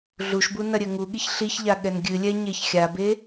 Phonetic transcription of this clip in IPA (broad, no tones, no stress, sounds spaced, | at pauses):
ɮ u ʃ b u n ɐ ɾʲ ɘ ŋ u ɠ i ç ɬ i ç ʎ a ɠ ɛ n ɡʲ ɨ lʲ ɛ ɲ e ç xʲ a b e